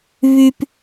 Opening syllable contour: high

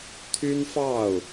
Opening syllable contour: high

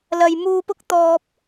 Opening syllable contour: low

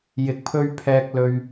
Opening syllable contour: rising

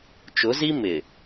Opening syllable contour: rising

